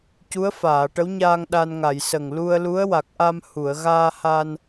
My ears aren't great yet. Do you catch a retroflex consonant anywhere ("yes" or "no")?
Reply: yes